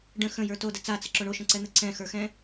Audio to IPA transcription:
ɖ ə̃ x ə̃ j ə˞ t o d ə t͡s a t͡s ə ǁ o ɳ o ʃ ə̃ ǀ ɛ n̪ ə ǀ ɛ̃ x ə˞ x ɛ̃

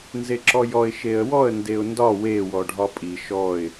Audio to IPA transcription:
n z e ǁ ɔ j ɔ ɪ̯ ʃ e ə̯ w ɔ ə̯ n d e ʊ̯ n d ɒ w e w ɔ ɖʱ ɒ pʼ i ʃ ɔ ɪ̯

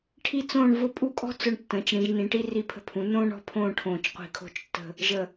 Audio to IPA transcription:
ʈʰ i˥˧ t͡s õː˥˧ ɳ v ʊ˥˧ pʼ u˥˧ kʼ ɔ̤˥ t͡s ʊ˧ ɳ tː ə̃ː˩˧ t͡ʃ ɽ ĩ˩˧ ʒ n ĩ˩˧ ʈ i˥ r i˧˩ pʰ ə̤˧ pʰ ũ˩˧ n õː˥ ɳ ɔ̤˥˧ pʰ õː˥˧ ʈʰ õː˧˩ t͡ʃ qʷ i̤˧˩ kʰ o̤˥˧ t͡ʃ tː ə̤˥˧ | ʒ ə˧˩

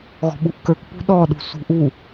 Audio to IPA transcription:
ɣ ɔ̤ ɓ u ʔ k ə˞ k p ṳ ɗ ɔ ɗ ṳ s ṳ ʔ u

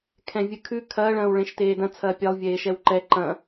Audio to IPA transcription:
kʰ ɛ̃ vʲ ɨ kʰ ʉ kʰ ɐː ɭ ɐ̃ː w ɭ ẽ ʃ t eː d ɐ̃ t͡sʰ ɐː pʲ e lˠ vʲ eː ʃ ɛ w ǃ ɛ ǃ ɐ̃

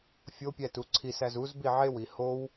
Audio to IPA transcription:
fʲ o pʲ æ t u ǀʰ i s æ z u z b i ʕ e w i h o w

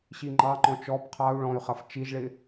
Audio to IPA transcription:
ɕ i ŋ͡ǃ ɑ ŋ͡ǃ ɔ̃ t͡ʃ ɔ b qʰ ɑ u̯ ɭ ɔ̃ y̯ χ ɐ f t͡ʃ i ʒ ɭ ɪ

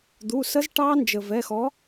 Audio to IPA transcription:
d̪ u˩˧˩ s ə˦˥ z ʈ ɑ˦˥ n d͡ʒ ə˩ v ɛ˩˧˩ x ɔ˨˦

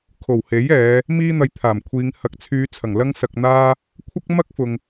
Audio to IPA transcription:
kʰ o˨˩ w h e˨˥ j ɛː˨˧ | m iː˥ n̪ ɐ˧ j t̪ʰ aː˨˩ m kʷʰ iː˨˧ ŋ h ɐ˨ k̚ t͡sʰ yː˨˧ t͡sʰ ɐ˨˩ ŋ l ɐ˥ ŋ s ɐ˧ k̚ n̪ aː˥ | kʷʰ ɐ˥ k̚ m ɐ˥ k̚ f ʊ˨ ŋ

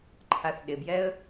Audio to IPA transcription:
ǃʰ a θ ɗ ɪ b j ɛ ə̯

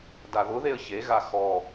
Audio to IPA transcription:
d a ð ʊ ð e ə̯ ç e ɣ a x ɔ

